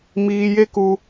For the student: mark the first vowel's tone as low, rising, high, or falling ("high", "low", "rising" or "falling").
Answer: high